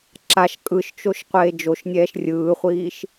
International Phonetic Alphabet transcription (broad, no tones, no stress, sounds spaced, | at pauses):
ǁ a ʃ kʼ ɯ ʃ t͡ʃ o ʃ qʷ eː d͡ʒ o ʃ nʲ ɛː ʃ rʲ ɯː χʷ iː ʃ